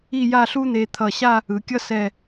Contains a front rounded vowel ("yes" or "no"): no